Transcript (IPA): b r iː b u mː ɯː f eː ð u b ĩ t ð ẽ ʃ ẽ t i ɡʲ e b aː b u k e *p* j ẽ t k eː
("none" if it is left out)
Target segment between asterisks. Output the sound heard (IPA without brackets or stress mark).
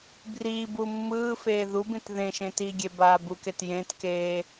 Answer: t